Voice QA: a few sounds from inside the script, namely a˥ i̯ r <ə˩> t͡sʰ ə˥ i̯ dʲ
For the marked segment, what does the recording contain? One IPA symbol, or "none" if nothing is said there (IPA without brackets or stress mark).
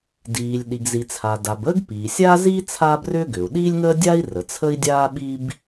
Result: ə˩